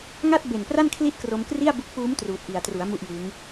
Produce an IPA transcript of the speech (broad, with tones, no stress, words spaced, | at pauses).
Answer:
ŋa˥˩t̚be˨˩npra˥˩n kʰli˥˩t̚kro˧m kri˥˩a̯bu˦˥k̚puː˦˥m truː˨˩t̚ʔi˨˩a̯tru˩˦a̯ mu˥˩ʔjɯː˦˥ŋ